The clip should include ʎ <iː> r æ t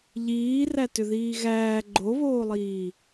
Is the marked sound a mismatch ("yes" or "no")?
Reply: no